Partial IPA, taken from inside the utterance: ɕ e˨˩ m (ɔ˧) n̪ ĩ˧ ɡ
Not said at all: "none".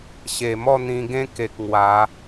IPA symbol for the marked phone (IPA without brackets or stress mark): ɔ˥˧